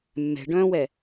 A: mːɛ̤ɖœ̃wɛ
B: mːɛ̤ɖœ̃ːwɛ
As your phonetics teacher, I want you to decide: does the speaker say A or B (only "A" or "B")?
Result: B